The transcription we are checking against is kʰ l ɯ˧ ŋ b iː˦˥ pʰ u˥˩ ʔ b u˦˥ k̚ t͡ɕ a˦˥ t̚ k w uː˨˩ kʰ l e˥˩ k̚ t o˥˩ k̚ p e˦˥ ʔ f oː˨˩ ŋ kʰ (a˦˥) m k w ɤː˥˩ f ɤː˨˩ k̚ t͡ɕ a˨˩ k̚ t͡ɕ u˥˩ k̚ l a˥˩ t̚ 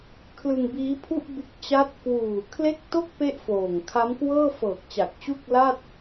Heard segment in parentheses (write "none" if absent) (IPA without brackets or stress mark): a˦˥